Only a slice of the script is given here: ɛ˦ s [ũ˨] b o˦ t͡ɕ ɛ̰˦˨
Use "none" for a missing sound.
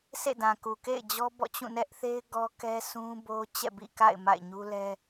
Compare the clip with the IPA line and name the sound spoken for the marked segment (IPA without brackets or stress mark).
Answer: ũ˦